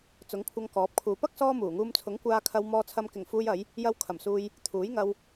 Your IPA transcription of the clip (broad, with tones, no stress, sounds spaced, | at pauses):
t͡s ʊ˨˥ ŋ kʷʰ ɐ˧ ŋ k ɔː˨˥ p̚ kʰ uː˨ p ɐ˥ k̚ s ɔː˥ m uː˨˩ ŋ uː˧ m t͡sʰ ʊ˨˥ ŋ kʷ aː˧ kʰ ɐ˧ w m ɔː˧ t͡sʰ ɐ˧ m k ɪ˨˩ ŋ f uː˧ j ɐ˨˧ j | j ɐ˧ w kʰ ɐ˨˩ m s uː˧ j | t̪ʰ uː˨˥ j ŋ ɐ˧ w